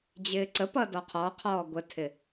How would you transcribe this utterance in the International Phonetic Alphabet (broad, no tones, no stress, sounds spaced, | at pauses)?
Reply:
d͡ʑ ɪː ǀ ə p ʌ d ɔ qʰ ɔ qʰ ɔː ɡʷ ə tʰ ɪ